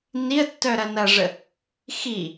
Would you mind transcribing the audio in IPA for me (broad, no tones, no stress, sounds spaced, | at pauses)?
n i ə̯ tː œ ɾ ɐ n ɐ ʐ ə | x i